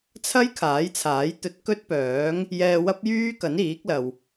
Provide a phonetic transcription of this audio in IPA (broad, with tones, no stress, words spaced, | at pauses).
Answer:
t͡sʰɐ˥j kʰaː˨˥jt͡sʰaː˨˥jt̪ɵ˧t̚ kɵ˥t̚pœː˨˥ŋ | jɛː˧wɐ˥p̚jyː˥kɐ˨˥n iː˨˥k̚lɐ˨w